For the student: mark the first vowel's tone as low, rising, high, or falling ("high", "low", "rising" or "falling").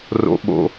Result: low